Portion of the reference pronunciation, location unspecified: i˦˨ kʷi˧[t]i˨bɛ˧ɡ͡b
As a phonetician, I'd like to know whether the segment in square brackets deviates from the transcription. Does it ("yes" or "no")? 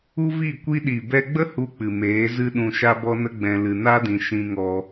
yes